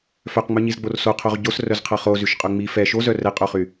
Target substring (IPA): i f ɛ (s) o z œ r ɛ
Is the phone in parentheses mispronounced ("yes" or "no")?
yes